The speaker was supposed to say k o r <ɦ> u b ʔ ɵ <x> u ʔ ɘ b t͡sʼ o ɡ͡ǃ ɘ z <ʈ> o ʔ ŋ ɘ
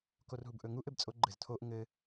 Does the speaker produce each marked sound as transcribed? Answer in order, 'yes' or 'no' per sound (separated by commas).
yes, no, no